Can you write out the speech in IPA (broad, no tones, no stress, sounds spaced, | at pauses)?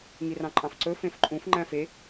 ŋ i r ɑ̃ ǃʼ ɑ̃ f ǀ ɵ f ẽ f ǃʼ ũ f ŋ͡ǃ æ̃ f e